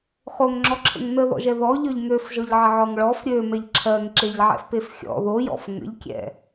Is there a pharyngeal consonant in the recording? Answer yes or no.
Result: yes